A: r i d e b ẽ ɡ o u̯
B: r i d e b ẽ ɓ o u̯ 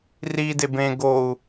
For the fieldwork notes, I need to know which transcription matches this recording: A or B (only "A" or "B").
A